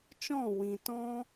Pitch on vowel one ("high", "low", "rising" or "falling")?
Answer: falling